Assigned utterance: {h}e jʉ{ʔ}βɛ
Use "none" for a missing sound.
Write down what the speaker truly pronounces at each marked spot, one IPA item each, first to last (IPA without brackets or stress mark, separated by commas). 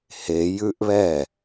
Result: h, ʔ